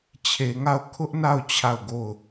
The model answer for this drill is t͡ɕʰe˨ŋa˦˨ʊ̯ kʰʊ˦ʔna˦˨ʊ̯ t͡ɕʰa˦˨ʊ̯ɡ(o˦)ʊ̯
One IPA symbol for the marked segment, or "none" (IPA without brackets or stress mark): o˦˨